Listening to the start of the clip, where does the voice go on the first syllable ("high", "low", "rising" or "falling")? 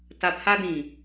low